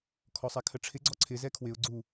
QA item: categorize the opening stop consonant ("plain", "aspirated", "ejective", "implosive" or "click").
aspirated